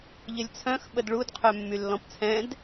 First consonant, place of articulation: palatal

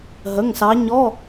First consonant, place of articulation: glottal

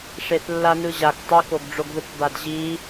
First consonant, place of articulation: retroflex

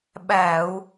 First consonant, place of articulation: labial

